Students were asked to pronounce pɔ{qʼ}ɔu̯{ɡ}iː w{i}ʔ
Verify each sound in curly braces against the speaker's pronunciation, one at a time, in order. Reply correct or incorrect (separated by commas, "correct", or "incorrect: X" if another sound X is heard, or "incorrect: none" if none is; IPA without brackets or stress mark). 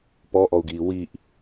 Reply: incorrect: ʔ, correct, correct